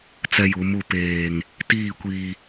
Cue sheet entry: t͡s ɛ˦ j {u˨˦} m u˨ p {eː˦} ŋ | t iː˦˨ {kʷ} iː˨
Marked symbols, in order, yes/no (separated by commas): yes, no, yes